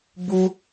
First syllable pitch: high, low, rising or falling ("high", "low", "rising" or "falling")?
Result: high